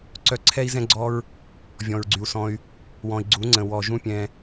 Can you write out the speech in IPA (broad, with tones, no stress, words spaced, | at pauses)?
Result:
ǀœ˧ǀʰɛ˦i̯zɛ̃˦ɡ͡ǀɔ˦ɹ | vʲɔ̃˨ɹɡ͡ǀy˨u̯sɔ̃˧y̯ | wɔ̃˨i̯ɡ͡ǀu˨˦ŋ͡ǀə̃˨ wɔ˨ʒũ˧ pʲɛ̃˧